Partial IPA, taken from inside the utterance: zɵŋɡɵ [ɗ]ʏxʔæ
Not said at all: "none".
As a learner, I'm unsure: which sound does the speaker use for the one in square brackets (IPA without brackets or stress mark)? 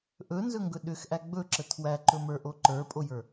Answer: ɗ